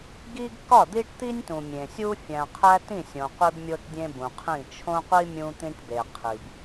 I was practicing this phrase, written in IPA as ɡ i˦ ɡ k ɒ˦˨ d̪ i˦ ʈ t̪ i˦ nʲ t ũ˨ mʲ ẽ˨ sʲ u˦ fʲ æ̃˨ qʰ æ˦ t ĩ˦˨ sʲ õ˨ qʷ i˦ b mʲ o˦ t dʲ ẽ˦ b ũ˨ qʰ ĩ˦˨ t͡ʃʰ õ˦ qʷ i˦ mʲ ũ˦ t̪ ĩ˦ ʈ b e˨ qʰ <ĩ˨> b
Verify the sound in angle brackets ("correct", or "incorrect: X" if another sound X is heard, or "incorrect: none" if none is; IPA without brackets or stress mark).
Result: incorrect: i˨